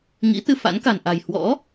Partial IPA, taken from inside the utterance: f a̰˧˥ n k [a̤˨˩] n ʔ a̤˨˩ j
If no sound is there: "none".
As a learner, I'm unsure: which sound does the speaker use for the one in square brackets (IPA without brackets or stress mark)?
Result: a̤˨˩